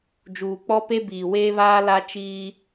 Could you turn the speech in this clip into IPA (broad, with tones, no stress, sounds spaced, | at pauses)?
d͡ʒ uː˨ k͡p ɔ˦ p e˦ b iː˨ w eː˦ β aː˦ l a˦ t͡ʃ iː˦